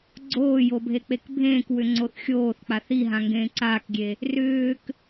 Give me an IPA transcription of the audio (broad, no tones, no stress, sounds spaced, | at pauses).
ɡ͡ǀ oː j o bʱ e k͡p e k bʱ ẽː k w ʏ ŋ͡ǀ o θ xʲ oː θ k͡p a θ i ɦ ã ŋ ɡ ẽː ǀ aː k ɡʲ e | r ʏː k